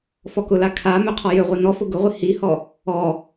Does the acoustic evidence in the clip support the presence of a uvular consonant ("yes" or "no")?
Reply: yes